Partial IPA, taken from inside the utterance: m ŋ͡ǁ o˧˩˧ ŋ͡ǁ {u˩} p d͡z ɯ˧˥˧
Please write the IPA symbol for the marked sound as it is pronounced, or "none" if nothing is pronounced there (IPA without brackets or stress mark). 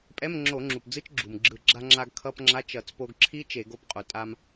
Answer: u˩